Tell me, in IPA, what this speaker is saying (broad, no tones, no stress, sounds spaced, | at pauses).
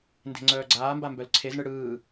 n d e̤ ŋ͡ǀ œː ɡ͡ǀ aː m b a m b œ l ǀʰ e z ɳ ɯ ɽ ɯː